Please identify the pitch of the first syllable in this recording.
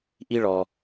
high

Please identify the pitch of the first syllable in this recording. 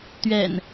low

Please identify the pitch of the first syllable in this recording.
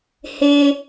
low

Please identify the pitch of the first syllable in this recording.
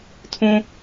high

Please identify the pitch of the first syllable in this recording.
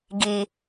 low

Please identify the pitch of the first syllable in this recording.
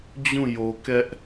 falling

